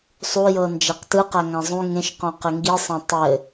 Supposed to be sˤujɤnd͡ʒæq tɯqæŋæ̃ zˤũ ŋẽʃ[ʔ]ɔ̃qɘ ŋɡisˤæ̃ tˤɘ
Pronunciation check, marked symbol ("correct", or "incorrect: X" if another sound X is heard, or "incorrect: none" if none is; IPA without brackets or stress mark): incorrect: q